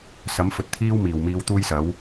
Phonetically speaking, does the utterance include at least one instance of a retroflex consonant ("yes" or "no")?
no